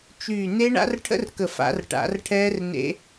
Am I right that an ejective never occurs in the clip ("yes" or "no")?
yes